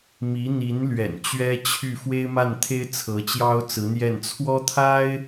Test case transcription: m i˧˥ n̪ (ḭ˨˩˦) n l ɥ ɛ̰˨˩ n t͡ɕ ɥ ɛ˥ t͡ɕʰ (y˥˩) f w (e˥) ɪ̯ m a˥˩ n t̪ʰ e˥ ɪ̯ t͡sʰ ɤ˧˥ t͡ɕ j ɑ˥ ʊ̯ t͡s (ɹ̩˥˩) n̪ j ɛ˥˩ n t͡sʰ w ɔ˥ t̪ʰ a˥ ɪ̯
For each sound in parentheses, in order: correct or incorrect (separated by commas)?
incorrect, correct, correct, incorrect